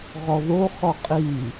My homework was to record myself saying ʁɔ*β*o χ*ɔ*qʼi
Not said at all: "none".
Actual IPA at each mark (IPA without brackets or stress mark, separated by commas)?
ð, ɔ